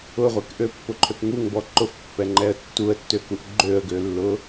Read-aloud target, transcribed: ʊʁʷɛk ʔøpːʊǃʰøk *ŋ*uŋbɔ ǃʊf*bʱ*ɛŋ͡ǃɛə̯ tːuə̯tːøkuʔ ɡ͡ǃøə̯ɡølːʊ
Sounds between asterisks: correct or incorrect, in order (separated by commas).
correct, incorrect